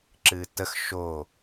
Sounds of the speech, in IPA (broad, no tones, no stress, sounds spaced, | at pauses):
ǁ ɨː t ə x ʃ o